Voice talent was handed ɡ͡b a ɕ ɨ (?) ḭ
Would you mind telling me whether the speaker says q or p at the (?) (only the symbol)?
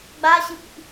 p